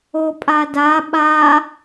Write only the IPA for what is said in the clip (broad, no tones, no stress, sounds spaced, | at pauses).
o pʼ a d a ɓ a